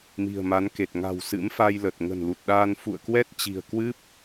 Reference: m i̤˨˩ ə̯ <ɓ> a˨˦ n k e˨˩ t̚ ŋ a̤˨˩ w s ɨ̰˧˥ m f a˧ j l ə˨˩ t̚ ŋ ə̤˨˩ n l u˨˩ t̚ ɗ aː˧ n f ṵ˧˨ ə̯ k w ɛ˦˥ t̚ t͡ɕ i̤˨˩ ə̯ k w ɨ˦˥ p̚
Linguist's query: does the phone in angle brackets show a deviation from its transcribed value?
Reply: yes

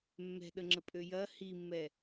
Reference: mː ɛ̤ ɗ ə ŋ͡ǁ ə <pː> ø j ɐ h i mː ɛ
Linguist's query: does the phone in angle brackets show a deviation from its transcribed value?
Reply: yes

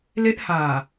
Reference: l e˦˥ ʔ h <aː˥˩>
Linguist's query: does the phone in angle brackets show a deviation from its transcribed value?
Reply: yes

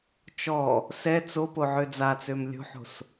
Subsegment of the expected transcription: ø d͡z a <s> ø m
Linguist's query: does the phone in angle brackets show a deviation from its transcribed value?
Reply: yes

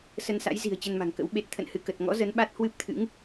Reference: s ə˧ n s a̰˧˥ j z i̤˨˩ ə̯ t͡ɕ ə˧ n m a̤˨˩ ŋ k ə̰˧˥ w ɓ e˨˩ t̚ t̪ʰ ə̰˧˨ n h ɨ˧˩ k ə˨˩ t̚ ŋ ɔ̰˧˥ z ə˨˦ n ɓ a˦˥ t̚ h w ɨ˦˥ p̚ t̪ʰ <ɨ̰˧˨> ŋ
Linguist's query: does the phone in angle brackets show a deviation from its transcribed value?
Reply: yes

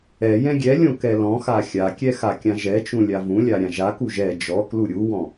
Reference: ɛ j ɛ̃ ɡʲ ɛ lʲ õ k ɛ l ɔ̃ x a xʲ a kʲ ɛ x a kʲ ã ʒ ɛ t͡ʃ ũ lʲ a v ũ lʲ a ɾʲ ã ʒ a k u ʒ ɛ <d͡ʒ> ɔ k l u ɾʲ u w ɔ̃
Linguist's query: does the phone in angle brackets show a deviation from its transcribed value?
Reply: no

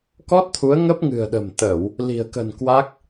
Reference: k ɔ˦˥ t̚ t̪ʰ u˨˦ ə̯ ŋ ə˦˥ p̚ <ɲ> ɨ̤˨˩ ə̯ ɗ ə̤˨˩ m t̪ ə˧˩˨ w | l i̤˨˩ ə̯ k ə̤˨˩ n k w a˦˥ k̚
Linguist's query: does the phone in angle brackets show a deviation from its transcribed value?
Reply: yes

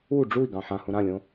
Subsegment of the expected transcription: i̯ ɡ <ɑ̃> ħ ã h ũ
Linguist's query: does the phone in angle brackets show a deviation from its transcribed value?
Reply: no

